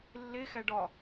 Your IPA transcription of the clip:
lː e x æ ɖ ɒ

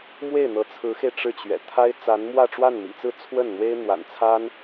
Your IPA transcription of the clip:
m w e˥˩ ɪ̯ n̪ ɤ˧˥ t͡sʰ ɹ̩˧˥ x e˧ ɪ̯ ʈ͡ʂ ɻ̩˥˩ t͡ɕ ɥ ɛ̰˨˩ t̪ʰ a˥ ɪ̯ t͡s a˧˥ n m w ä˥˧ ʈ͡ʂ w a˥˩ n m ḭ˨˩ t͡s ɹ̩˥˧ t͡sʰ w ə˥˩ n n̪ w e˥ ɪ̯ n̪ w a̰˨˩ n t͡sʰ a˥ n

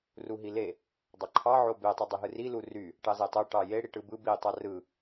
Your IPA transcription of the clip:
r u ɦ i l e | dˤ ɑ ǃʰ ɑ ʕ o b e tˤ u dˤ ø ɦ ɯ r i l u r y | ʈ ɑ z e tˤ o ʈ ɑ j e ɽ i ʈ ɯ b ɯ b i tˤ ɑ r ɯ

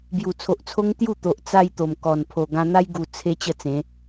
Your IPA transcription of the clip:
b j u˨˩ t͡sʰ o˨ ʔ t͡sʰ o˦ ŋ t̪ j u˥˧ t̪ o˨ ʔ t͡s a˧ j t̪ o˨˩ m k ɔ˨˩ n pʰ o˨˩ ɡ ã˧ n̪ a˦ j ɡ u˨˩ t͡sʰ e˧ t͡ɕ ə˥˧ t͡s ẽ˨˦

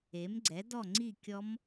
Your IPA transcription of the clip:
e˨˥ m ɡ͡ǀ ɛ˨˥ d ɔ˥˧ ŋ͡ǀ i˥˧ kʲ ɔ˦˥ m

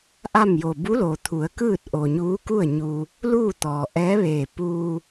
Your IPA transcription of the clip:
ʔ a˥˨ m j o˧˩ b u˧˥ l o˩ t̪ʰ u˩˧ ə̯ k ɯː˥˨ t̚ ʔ o˩ ɲ uː˧˥ k u˥˨ ə̯ ɲ u˧ | l uː˥˨ t̪ ɔː˩ ʔ ɛː˧˥ ʋ eː˧˩ p uː˧

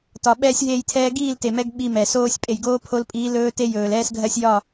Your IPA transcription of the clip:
t ɒ˨ ɓ ɛː˦ sʲ ɦ eː˦˨ j tʰ ɛː˦ ɡ iː˦˨ l t e˨ m ɛ˧ ɡ ɓ i˧ m ɛ˨ s oː˦ sʲ pʼ e˨ j ɡ oː˦ pʰ o˧ l pʼ iː˨˦ l ɵː˦ t e˦ j ɵː˨ l ɛː˦ s ɡʱ ɜ˦ sʲ j ɒ˦˨

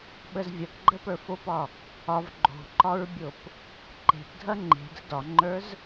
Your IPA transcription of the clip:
ɓ ə z vʲ ɐ k ɡ͡ǃ ə p ə˞ f o p ɒ | ɒ v ɡ͡ǃ o̤ ǃ ɒ ɹ bʲ o p | ǃ e̤ p dʱ ɐ ŋ͡ǃ e̤ d ə̤ d ɒ ŋ͡ǃ ə˞ z

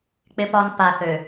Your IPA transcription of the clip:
k͡p ɪ˦ p ɒ˦ n p a˨ θ ø˨

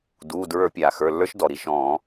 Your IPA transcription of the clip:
d uː˩˧˩ d ɹ ə˞˧˩˧ pʲ aː˩ x ə˞˩˧˩ lː ə˞˦˥ ʃ d ɔ˩ ɾ i˩˧˩ ʃ ɔ̃ː˧˩˧

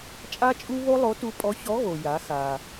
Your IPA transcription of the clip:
t͡ʃʼ a˥ t͡ʃʼ u˥ β o˥ lˠ o˧˥ t u˧˥ pʼ ɔ˧˥ ç ɔ˧˥ ɣ o˩ j a˩˧ x a˩

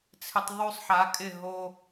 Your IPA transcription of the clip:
t͡sʰ ɪ˧ tˤ ðˤ y˧ sˤ ħ a˩˧ kʼ ɪ˧˩ ɦ o˧

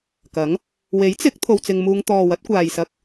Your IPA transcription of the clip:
k ɐ˨˥ ŋ | w e˨˥ j t͡s ɪ˨˥ k̚ t̪ʰ o˧ w t͡s ɪ˧ ŋ m uː˧ ŋ t̪ ɔː˨ w ɐ˨˥ t̚ kʷ aː˨ j s ɐ˧ k̚

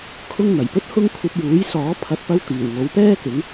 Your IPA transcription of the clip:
kʰ ʊ˥ ŋ n̪ ɐ˨˩ j p ɵ˥ t̚ h ʊ˥ ŋ kʷʰ ɐ˧ p̚ j uː˨˥ j s ɔː˨˥ pʰ ɐ˨ t̚ p ɐ˧ w t̪ iː˨˩ w ŋ o˨˥ w p ɛː˥ k ɪ˨˥ ŋ

